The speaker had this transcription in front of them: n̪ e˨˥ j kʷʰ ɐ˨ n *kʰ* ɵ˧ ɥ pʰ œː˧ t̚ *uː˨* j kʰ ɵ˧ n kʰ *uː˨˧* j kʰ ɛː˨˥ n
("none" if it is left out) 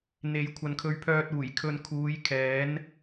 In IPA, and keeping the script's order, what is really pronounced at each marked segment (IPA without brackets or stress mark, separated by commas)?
kʰ, uː˨˩, uː˨˧